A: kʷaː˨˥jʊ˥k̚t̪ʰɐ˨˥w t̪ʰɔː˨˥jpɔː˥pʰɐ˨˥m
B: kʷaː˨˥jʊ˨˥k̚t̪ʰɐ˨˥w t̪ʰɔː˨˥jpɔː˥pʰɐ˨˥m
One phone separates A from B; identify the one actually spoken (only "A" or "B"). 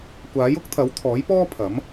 A